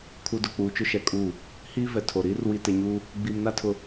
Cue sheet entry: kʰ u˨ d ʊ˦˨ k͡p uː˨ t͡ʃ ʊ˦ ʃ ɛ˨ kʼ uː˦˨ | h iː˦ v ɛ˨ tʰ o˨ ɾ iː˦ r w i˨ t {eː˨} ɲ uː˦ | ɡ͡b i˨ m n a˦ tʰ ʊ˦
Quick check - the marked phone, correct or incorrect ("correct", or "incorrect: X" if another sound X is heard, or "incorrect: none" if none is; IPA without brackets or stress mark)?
incorrect: e˨